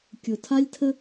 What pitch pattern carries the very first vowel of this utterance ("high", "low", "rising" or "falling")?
low